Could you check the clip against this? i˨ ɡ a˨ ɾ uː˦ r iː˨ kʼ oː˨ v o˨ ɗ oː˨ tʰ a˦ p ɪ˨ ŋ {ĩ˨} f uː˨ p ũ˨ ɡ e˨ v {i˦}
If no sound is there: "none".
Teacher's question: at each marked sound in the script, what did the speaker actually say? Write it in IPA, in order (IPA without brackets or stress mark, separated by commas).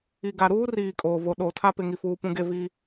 i˨, i˦